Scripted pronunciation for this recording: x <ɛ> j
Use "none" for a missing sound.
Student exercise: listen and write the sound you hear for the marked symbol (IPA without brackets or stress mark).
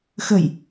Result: ə